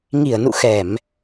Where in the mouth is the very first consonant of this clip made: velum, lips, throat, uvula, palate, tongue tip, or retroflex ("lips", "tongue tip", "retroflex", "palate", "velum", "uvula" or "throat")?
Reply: velum